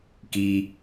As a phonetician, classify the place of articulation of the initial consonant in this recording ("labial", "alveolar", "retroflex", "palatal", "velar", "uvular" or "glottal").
velar